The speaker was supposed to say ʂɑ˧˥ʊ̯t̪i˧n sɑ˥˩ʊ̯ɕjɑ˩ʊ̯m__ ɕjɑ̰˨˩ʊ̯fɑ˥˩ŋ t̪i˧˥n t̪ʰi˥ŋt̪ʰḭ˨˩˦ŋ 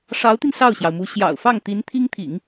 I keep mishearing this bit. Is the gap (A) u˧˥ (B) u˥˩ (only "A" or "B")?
A